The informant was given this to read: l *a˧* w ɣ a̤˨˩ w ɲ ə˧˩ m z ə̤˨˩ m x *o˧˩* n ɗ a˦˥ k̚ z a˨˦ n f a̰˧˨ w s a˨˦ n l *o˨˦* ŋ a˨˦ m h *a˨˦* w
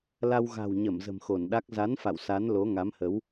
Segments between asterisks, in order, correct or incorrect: correct, correct, correct, incorrect: ə˨˦

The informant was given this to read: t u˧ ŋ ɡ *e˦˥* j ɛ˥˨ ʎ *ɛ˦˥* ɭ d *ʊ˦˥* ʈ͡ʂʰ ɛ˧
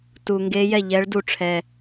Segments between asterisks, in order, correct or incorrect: correct, correct, incorrect: u˦˥

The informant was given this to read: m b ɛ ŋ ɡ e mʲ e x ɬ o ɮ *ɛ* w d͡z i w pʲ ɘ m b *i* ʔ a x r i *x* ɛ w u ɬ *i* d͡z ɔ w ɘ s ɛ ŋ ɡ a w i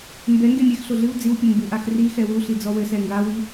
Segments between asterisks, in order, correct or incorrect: incorrect: ɨ, incorrect: ɨ, correct, correct

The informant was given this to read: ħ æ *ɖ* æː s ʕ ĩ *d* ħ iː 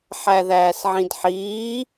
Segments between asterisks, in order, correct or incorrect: incorrect: ð, correct

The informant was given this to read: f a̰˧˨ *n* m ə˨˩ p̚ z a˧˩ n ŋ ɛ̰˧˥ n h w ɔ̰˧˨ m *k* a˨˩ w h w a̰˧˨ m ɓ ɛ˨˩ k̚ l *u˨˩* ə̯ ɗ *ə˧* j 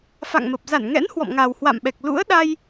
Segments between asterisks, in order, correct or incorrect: incorrect: ŋ, incorrect: ŋ, incorrect: ṵ˧˥, incorrect: a˧

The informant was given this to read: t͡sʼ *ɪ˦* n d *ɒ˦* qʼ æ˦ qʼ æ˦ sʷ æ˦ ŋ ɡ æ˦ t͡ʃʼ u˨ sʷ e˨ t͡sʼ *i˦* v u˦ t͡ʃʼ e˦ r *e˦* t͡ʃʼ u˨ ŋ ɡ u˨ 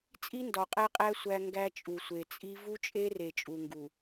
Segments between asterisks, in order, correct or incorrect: incorrect: i˦, incorrect: ɒ˨, correct, incorrect: e˨

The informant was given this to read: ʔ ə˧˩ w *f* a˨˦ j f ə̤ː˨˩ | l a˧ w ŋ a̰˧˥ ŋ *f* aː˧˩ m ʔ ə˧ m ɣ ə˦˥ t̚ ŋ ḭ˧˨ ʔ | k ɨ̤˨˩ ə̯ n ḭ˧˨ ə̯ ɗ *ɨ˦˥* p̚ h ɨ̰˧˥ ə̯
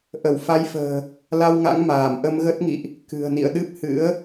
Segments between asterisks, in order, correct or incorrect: correct, incorrect: m, correct

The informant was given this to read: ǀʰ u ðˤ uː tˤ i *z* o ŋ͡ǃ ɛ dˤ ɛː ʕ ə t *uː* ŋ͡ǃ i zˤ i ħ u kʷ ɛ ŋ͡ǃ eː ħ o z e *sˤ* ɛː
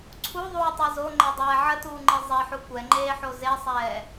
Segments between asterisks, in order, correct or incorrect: correct, correct, correct

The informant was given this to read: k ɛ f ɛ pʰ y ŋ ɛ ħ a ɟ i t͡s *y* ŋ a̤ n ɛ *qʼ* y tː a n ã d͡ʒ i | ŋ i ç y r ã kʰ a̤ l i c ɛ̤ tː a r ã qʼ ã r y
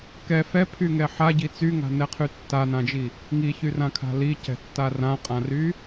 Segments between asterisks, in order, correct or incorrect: correct, incorrect: qʰ

